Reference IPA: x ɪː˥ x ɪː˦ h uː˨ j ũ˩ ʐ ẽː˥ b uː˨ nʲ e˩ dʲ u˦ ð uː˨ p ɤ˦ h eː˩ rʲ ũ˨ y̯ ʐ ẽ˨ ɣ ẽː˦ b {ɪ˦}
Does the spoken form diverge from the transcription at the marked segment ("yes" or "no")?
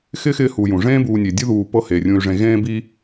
yes